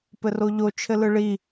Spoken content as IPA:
p ɘ r o ʎ o t͡ʃʰ ɘ l ɯ ɭ i

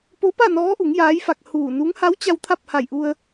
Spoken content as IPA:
p o˧˥ p a˥˨ n ɔː˧˥ ʔ u˩˧ ŋ j aː˧˥ j f a˧ k̚ h uː˧˩ n u˧˥ ŋ h a˧˥ w t͡ɕ a˧ w t̪ʰ a˥˨ p̚ h a˧˩ j ʔ u˧ ə̯

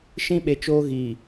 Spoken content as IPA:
ʃ ĩ˦ ɓ e˨ t͡ʃ oː˦ ɣ iː˨

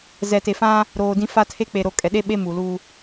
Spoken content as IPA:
z ɛ˨ t e˨ f ã˦ | ɾ oː˨ d ĩ˦ f a˦ tʰ e˦ k͡p e˨ ɾ o˨ kʼ ɛ˨ ɗ e˦ ɓ e˦ m u˨ l u˦

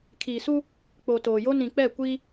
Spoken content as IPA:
kʰ iː˨ s u˦ | k͡p o˨ t oː˨ j o˦ n ĩ˨ k͡p ɛ˦˨ kʷ iː˦

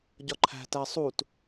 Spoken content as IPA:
ɟ ɒ ǃʰ æ̤ t æ sˤ u t

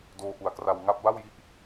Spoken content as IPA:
d oː˧ ʔ u˨˩ a̯ k r a˧ w ŋ a˦˥ p̚ b a˥˩ w j i˥˩ ʔ

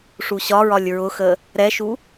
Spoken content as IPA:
ʂ u ɕ ɒ ɹ ɒ lʲ ɹ ʊ x ə | ɾ ɛ ʃ u

